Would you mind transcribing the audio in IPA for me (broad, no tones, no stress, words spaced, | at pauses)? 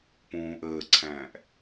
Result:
pũːʔəːǀʰæ̃ːʔ